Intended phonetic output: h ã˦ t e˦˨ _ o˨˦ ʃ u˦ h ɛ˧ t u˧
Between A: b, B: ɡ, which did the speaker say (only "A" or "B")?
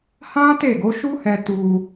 B